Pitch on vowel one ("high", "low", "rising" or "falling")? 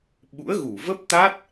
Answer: rising